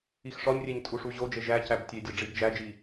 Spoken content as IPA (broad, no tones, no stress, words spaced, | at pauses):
ixʂɒɲrʲeɲ tʼuʂuʑod͡ʒe ʒæ cæbtʲedʲɒ ɖ͡ʐibd͡ʒæd͡ʒi